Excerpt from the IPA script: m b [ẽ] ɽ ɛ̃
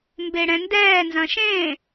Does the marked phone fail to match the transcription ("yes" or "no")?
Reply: yes